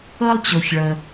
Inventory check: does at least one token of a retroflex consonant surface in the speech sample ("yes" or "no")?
yes